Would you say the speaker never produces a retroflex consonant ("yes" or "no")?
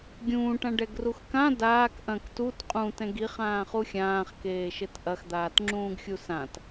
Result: no